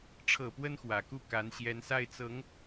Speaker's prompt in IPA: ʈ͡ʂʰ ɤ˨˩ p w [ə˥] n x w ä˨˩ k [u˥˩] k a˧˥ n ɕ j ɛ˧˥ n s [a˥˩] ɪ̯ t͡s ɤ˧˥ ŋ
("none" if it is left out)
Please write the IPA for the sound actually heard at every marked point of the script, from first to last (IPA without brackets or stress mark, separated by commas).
ə˥, u˥˩, a˥˩